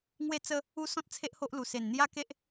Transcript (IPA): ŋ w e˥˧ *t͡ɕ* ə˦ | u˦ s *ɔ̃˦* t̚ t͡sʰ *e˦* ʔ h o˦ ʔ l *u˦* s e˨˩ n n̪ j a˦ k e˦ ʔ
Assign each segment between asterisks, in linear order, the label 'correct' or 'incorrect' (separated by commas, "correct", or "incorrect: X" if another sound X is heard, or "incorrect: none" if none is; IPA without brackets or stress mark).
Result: incorrect: t͡s, correct, correct, incorrect: u˨˩